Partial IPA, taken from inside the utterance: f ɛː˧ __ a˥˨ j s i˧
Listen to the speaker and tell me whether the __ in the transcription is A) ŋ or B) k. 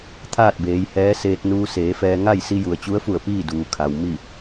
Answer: A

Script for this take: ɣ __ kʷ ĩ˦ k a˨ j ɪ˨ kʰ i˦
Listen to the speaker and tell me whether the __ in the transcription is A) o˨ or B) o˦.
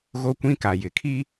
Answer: B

